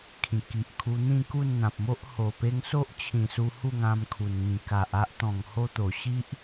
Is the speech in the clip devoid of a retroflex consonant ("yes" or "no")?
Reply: yes